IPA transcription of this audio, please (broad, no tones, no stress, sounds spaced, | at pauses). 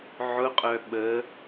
ʕ ʊ qʼ œ ɓ ə